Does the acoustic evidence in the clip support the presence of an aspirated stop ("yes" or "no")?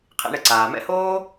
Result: yes